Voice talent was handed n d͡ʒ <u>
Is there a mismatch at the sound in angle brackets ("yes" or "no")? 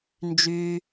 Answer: yes